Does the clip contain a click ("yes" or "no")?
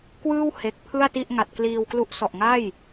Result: no